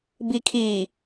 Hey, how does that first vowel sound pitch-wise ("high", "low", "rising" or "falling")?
low